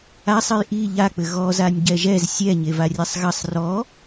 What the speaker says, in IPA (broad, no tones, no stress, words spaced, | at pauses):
asˤɨj ʔi ʎak͡pɘ ɣɔzanʲ ɟɛʒɛz sʲɛ ɲevarʲasˤɣɐsˤ rɔ